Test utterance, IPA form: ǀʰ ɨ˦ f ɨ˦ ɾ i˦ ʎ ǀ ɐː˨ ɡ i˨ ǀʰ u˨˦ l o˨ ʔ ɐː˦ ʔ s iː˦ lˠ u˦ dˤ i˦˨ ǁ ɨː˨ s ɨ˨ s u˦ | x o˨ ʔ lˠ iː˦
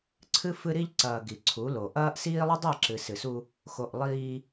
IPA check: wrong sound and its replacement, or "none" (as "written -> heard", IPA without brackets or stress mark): ɨː˨ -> ɨ˨